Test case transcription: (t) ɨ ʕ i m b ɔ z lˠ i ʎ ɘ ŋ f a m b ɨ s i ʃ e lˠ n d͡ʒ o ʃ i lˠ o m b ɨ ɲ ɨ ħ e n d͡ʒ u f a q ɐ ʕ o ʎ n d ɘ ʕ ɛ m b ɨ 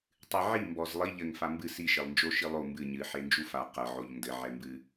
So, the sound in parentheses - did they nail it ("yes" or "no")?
no